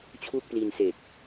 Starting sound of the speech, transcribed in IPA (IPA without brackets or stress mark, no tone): t͡ɕʰ